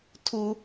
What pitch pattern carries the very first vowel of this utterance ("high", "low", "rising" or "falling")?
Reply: high